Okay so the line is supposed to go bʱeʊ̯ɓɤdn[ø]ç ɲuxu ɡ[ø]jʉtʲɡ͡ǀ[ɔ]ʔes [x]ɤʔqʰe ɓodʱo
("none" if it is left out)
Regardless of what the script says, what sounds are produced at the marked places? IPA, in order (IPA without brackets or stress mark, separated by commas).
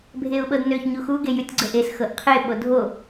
ø, e, ɤ, x